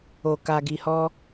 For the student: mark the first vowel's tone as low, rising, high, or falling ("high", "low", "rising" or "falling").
low